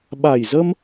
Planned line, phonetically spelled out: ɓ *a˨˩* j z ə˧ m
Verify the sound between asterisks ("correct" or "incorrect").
correct